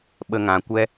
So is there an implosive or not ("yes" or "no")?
yes